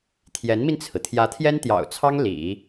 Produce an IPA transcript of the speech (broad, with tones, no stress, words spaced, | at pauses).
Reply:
t̪ʰjɛ˧˥nmi˧nt͡sʰɹ̩˩ t̪ʰjä˧˥t̪ʰjɛ˥nt̪jɑ̰˨˩ʊ̯t͡sʰɑ˥ŋ lḭ˨˩˦